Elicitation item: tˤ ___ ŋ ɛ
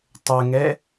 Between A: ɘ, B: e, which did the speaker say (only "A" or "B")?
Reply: A